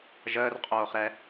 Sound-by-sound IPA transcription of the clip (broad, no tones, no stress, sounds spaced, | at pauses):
ʒ əː r qʼ oː χ ɾ ɛ